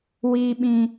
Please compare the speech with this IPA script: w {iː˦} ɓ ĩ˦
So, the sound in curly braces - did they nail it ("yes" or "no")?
yes